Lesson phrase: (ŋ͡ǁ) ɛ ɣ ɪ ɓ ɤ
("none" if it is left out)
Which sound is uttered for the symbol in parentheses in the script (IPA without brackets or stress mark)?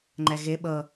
ŋ͡ǃ